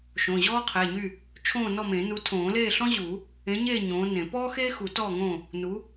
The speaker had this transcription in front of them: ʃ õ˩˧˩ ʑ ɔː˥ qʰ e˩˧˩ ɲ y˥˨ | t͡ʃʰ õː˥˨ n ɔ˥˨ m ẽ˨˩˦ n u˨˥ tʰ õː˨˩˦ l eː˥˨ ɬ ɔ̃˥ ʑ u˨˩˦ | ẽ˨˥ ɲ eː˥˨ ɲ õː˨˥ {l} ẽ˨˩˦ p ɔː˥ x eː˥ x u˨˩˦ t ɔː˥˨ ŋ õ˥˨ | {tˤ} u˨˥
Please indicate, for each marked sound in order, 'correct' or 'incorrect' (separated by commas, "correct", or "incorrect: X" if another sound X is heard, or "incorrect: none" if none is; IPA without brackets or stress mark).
incorrect: n, incorrect: n